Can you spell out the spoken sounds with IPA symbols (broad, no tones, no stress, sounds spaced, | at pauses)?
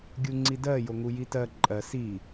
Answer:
ɡʲ u ŋ͡ǀ i d ɜ j o ŋ u j i t ɜ ǃʼ ɜ s i